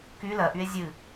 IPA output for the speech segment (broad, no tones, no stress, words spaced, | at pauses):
ky lɜʔye̯ zʲɨ